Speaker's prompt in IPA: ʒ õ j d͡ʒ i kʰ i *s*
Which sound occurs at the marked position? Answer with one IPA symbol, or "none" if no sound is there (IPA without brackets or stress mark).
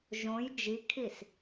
s